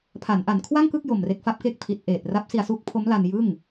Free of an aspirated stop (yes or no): no